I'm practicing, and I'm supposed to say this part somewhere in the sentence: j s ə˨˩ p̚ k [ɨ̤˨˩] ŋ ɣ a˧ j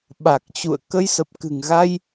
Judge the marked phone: correct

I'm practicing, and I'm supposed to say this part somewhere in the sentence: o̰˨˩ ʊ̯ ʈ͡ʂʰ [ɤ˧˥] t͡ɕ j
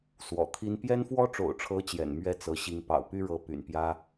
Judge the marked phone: correct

